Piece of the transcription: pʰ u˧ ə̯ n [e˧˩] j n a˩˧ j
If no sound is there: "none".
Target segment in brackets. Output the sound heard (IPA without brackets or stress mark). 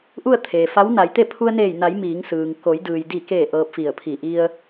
eː˧˩